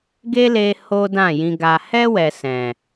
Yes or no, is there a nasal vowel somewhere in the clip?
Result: yes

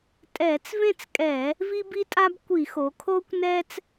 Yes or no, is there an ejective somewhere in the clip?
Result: yes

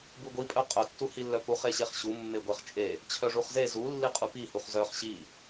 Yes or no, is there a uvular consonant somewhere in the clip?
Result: yes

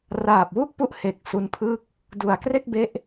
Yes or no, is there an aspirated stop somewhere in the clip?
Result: yes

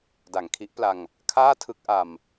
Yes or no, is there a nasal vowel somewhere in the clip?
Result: no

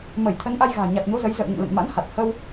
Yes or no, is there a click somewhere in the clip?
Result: no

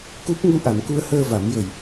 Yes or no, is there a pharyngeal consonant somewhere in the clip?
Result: no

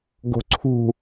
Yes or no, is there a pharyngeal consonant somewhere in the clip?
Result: no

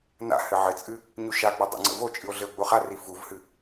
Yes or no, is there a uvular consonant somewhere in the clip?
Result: yes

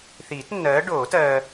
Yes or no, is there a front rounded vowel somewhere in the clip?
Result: no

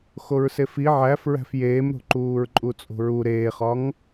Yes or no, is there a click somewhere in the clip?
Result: yes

